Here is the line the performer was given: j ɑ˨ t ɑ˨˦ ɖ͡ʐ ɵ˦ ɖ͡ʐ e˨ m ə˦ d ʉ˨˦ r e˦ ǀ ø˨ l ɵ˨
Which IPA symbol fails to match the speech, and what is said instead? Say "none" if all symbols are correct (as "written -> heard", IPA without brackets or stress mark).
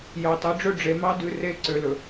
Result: ə˦ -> ɑ˦